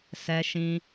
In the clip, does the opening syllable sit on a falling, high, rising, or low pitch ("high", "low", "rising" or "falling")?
high